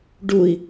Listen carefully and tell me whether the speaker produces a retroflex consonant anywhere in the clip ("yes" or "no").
yes